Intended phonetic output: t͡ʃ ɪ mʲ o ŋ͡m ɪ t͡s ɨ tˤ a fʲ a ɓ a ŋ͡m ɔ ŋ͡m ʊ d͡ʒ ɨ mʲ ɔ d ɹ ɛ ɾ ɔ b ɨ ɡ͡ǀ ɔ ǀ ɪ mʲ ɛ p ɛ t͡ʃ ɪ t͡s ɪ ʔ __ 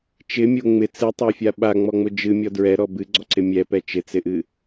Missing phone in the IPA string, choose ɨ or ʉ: ɨ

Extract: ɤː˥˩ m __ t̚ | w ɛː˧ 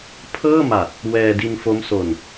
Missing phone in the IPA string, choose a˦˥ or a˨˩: a˨˩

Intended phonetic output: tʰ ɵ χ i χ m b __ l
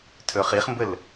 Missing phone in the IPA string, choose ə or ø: ə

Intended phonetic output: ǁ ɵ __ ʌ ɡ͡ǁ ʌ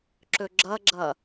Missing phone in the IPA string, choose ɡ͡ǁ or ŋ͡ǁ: ɡ͡ǁ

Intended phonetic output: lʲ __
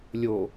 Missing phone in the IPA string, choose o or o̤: o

